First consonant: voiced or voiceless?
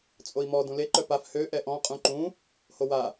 voiceless